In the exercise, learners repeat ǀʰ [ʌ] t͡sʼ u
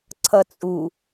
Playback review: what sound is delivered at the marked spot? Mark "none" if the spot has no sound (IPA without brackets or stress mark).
ʌ